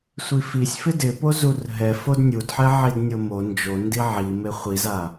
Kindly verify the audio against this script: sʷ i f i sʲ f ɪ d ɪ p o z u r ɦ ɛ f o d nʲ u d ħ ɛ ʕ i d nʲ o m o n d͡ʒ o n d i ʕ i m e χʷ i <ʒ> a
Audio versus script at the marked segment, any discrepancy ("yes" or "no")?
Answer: yes